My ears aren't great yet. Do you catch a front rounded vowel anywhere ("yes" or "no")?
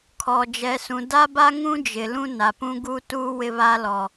no